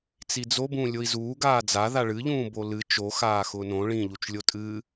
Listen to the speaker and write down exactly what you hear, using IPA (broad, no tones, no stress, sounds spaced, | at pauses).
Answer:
t͡s i d͡z o b ũː lʲ o i̯ z uː ɡ aː d͡z a ð a ɭ ɨ ʎ ũː b o l ɨ t͡ʃ o x aː x ʊː n õ ɭ ĩ ʎ u t͡ʃ lʲ o tʼ ɨ